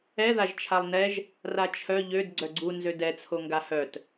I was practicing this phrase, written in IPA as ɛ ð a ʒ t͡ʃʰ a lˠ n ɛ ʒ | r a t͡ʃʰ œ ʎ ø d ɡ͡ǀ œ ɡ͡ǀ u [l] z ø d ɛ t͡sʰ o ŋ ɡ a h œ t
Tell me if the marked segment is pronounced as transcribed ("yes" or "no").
no